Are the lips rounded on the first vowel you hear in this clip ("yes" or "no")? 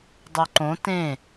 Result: yes